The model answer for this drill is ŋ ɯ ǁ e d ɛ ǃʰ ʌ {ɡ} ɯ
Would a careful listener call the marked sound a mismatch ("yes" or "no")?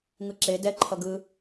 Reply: no